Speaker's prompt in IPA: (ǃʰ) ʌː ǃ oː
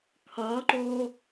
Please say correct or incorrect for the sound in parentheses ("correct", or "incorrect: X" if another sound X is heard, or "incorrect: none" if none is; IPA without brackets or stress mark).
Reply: incorrect: kʰ